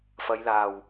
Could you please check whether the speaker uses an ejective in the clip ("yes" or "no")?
no